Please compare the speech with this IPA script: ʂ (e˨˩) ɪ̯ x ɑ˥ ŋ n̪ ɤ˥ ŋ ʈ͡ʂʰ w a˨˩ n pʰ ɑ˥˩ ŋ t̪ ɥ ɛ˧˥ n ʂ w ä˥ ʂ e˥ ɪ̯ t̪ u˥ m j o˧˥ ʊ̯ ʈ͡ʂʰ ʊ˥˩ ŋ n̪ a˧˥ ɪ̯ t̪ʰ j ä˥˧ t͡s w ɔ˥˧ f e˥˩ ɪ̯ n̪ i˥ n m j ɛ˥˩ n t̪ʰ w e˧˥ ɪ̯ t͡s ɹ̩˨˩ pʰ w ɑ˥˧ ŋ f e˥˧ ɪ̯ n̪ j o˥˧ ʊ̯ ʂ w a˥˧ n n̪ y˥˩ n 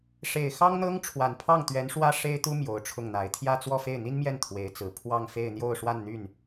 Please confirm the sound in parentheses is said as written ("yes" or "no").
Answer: yes